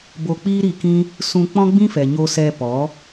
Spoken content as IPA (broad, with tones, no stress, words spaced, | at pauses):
bo˧k͡piː˦ɾiː˧ kĩ˦ | sũ˧k͡pɔ̃˦ɡ͡bĩ˦fɛ˨ ɲo˧sɛ˧ pɔ˨˦